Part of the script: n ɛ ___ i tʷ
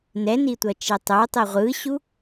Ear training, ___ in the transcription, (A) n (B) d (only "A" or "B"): A